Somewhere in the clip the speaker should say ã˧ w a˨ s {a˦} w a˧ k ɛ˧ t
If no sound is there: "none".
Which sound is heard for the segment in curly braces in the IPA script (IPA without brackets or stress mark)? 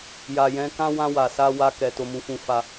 a˧